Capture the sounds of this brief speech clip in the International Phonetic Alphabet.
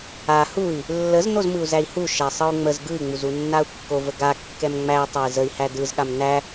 a h u i̯ | lː ə z n o z m ɯ u̯ z æ i̯ h u ʃ æ sˤ ɯ u̯ ŋ͡m ə z ɡ ɯ i̯ ŋ͡m u z u nː a u̯ kː o v ə ɡ a kː ɛ m ŋ͡m æ i̯ tˤ ə i̯ z ə i̯ h æ d ɯ z ɠ a m n æ

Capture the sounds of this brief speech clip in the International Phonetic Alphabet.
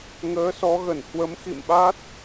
ŋ əː˨˦ s ɔ˨˦ ɣ ə˧˩ n h w ə˨˦ m x ḭ˧˨ m ɓ a˦˥ t̚

